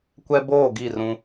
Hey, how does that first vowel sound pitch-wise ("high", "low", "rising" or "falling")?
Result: high